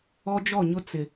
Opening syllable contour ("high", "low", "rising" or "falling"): high